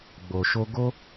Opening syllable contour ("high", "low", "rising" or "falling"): low